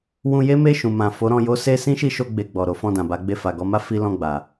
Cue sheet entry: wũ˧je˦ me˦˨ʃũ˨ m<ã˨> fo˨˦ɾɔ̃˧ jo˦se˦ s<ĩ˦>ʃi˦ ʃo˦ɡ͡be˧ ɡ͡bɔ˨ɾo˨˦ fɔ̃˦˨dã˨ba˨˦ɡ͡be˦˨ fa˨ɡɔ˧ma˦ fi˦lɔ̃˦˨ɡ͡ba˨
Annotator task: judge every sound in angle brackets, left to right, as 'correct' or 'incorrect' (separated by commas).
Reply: correct, correct